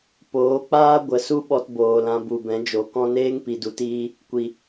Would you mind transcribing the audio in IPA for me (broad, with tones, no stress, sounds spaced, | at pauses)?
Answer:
p oː˨˦ k͡p aː˦ ɡʷ ə˨˦ s u˦ ɓ ɔ˧ t b oː˨ l ã˧ b u˨ b ɛ̃˨˦ d͡ʒ o˨ k ɔ̃˧ n eː˦ ŋ p i˨ d u˨ t iː˧ | kʷ i˨